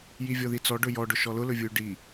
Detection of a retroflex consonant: present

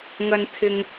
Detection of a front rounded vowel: absent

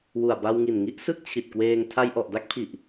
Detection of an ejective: absent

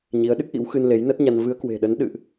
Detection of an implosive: present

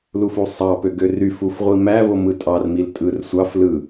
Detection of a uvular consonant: present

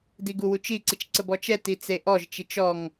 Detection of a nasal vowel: absent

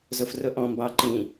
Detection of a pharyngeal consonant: absent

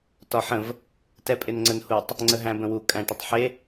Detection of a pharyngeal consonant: present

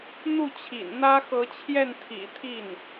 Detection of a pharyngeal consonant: absent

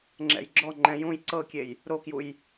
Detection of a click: present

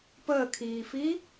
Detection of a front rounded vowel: absent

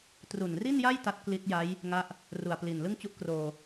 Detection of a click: absent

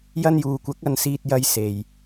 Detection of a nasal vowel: absent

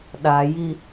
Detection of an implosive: present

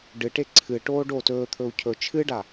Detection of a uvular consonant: absent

